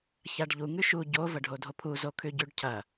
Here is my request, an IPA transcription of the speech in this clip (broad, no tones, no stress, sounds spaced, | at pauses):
ç a ɖ ʎ u ŋ ʉ ʃ u ɟ o v ɐ ɖʱ o dʱ o pʰ u z o kʰ ʉ ɟ ʉ ɖ cʰ ɐ